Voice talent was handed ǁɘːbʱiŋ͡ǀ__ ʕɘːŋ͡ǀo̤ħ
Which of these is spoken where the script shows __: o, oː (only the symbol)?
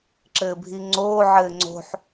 oː